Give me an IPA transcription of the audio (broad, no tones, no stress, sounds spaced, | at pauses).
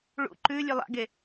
ɭ ṵ ǃ ʉ lʲ ʉ lˠ a̰ ɡ e